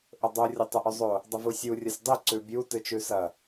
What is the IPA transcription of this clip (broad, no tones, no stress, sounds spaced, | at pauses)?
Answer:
ʔ ɵ dˤ o rʲ o tˤ u ʔ ʉ zˤ o | dˤ ɐ v u sʲ u rʲ ɐ sʲ dˤ i ǀ ʉ bʲ u t ɨ t͡ʃ ʉ s ɐ